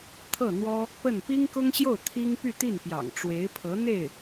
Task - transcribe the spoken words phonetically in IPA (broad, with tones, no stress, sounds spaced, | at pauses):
t̪ʰ ɤ˥˩ n̪ w ɔ˥ | p ə˥˩ n p i˥ ŋ k ʊ˥ ŋ ɕ j o˥˩ ʊ̯ t̪ʰ i˥ ŋ p y˥˧ t̪ i˥˩ n p j ɑ̰˨˩ ŋ ʈ͡ʂ w e˧˥ ɪ̯ pʰ ɤ˧˥ n̪ e˥˩ ɪ̯